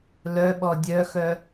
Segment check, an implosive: present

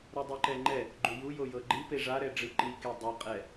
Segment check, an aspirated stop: absent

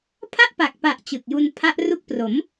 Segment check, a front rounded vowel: absent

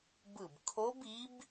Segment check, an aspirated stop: present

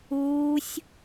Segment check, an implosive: absent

